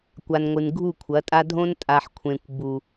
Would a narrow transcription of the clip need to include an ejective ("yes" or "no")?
yes